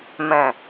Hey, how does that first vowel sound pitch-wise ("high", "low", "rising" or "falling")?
low